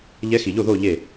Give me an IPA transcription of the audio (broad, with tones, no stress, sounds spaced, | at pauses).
ʎ ɛ˧˥ x i˨ ʎ o˥˨ ð o˥˨ ʎ e˥˨